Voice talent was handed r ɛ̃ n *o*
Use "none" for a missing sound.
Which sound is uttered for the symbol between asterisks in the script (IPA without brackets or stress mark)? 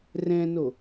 o